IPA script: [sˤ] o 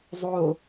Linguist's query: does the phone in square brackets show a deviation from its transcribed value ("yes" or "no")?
yes